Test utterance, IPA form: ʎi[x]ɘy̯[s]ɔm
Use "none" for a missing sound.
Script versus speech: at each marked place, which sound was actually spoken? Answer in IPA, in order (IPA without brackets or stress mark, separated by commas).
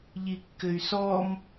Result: kː, s